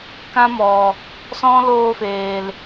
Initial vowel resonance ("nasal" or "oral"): nasal